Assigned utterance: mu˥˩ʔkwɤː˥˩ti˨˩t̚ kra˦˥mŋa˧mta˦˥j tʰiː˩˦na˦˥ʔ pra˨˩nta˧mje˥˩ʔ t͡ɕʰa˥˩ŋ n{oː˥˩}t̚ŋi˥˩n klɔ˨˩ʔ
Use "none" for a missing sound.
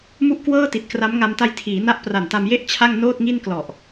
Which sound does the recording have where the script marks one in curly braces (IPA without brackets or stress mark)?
oː˥˩